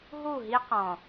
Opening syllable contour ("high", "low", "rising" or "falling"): falling